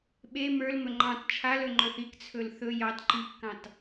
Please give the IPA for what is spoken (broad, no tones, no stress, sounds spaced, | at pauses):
ɓ e m ə˞ l m ɵ ŋ͡ǃ ɑ̃ t t͡ʃʰ a l ɵ ŋ͡ǃ ɵ θ i k t͡sʰ ɵ l θ ɵ j ɑ t ǃ i kː ɑ̃ t